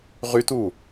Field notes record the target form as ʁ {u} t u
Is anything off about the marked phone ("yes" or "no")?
yes